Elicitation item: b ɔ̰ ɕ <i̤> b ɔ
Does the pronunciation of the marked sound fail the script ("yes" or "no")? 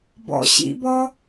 yes